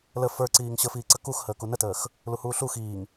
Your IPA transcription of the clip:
l ə f ə˞ ǀ iː ŋ ɕ ə f iː ǀ ə k u x h əː k u n ə t əː x | l u h uː ɬ u x iː ŋ

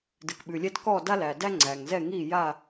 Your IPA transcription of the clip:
d ɨ˨ k ɓ ʉ˨ lʲ ɛ˦ d k ɔ˦˨ d a˦ l æ˨ d æ˦ ŋ͡ǀ æ˨ ŋ z ɛ˦˨ ŋ i˦˨ j a˦˨

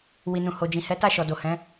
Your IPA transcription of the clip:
w i˨ n ũ˨ h o˨ d͡ʒ ĩ˨ h ɛ˨˦ t a˦˨ ʃ ɔ˨ d o˨ h ɛ̃˨˦

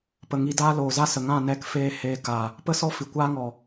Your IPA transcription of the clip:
p ə˨ ŋ i˧ d aː˦ l oː˨ z a˦ s ə˨ ŋ ã˦˨ n ɛ˦˨ k f eː˦ h eː˧ k a˨ | p ə˦ s ɔ˦ f i˨ kʷ aː˦ ŋ ɔ˨

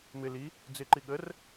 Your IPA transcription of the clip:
m ɪ l i | d͡z ɪ ǃ i ɠ ə r

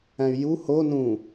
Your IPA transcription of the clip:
æ̃ y̯ j u h o n ũ

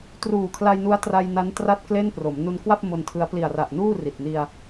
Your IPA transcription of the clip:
t r uː˨˩ kʰ l a˧ j n u˦˥ a̯ t r a˧ j n a˦˥ n t r a˥˩ t̚ k l e˥˩ n p r o˩˦ m n u˧ n k w a˥˩ p̚ m o˧ n tʰ ɯ˦˥ a̯ p l i˨˩ a̯ r a˨˩ ʔ n uː˥˩ r i˨˩ t̚ n i˧ a̯

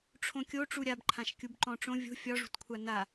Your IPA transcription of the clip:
ʈ͡ʂʰ õ kʲ o ʈ͡ʂ u ɾʲ a b ǃʰ ã ʃ kʲ u b ǃ ɔ̃ ʈ͡ʂ õ vʲ o̤ fʲ ɒ ʐ ṳ t kʷʰ a n a

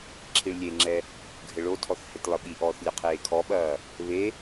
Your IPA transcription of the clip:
ǁʰ i ɭ lʲ e ŋ͡ǁ ɛ | ɡʱ ɘ ɭ o tʰ ɔ θ h e t lˠ ɘ ɓ i ʔ ɔː θ lʲ ɐ qʰ eː kʰ ɔ ɓ ɐː | β e

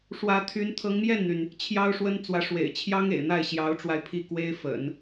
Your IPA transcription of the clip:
ʂ w ä˧˥ t̪ʰ y˧˥ n t̪ʰ ɤ˧˥ ŋ m j ɛ˥˩ n n̪ y˩ n | t͡ɕʰ j ɑ˥ ʊ̯ ʂ w ə˥ n t͡s w ä˧˥ ʂ w ḛ˨˩ ɪ̯ t͡ɕʰ j ɑ˥ ŋ ḛ˨˩ ɪ̯ n̪ a˥˩ ɪ̯ ɕ j ɑ˧˥ ʊ̯ ʈ͡ʂ w a˧ ɪ̯ pʰ i˥˩ k w e˥ ɪ̯ f ə̰˨˩˦ n

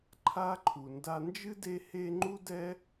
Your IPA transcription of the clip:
ǃʰ a˥ ǃʰ u˨ n d a˦ n d͡ʒ ɨ˥ d e˦ h e˦ ŋ͡ǃ u˥ d ɛ˥

